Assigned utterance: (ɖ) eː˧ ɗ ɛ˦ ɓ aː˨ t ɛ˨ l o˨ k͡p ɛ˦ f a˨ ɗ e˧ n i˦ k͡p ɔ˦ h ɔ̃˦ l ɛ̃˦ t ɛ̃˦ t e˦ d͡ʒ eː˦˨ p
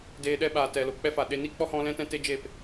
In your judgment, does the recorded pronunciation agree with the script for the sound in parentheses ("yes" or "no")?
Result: no